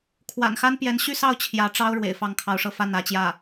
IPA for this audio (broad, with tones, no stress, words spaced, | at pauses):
kʰwa̰˨˩nxa˥n pjɛ˧˥nɕy˥˧sɑ˥˩ʊ̯ t͡ɕʰjä˧˥ʈ͡ʂɑ˥ʊ̯ ɻwḛ˨˩ɪ̯fɑ˥˩ŋkʰɑ˧˥ʊ̯ʂɤ˥˧ fa˥˩nä˧˥t͡ɕjä˥˩